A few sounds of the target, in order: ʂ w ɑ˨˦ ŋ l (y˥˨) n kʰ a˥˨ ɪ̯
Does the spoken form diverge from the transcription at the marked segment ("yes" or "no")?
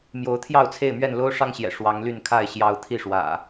no